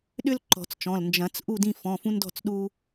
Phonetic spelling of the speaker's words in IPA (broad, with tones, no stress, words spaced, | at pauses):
ɗʏ˦l ǃɔ̤˨˩˦t͡st͡ʃɔ̃˩˧˩l nd͡ʒɐ̃˨˩˦t͡s ʔu˥˨dĩ˥˨fɔ̃˩˧˩ fũ˦ndɔ̤˥˨t͡sɗu˦